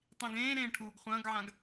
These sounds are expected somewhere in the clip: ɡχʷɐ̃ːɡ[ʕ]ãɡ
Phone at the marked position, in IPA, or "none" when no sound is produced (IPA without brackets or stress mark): ʕ